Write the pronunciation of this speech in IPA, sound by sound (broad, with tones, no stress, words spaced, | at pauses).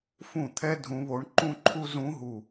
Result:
fũ˥˩t̪ʰɛ˥ dʱũ˧˥βo˧˥ɳǃũ˥ǃʰu˥ zũ˧˥ɦu˧˩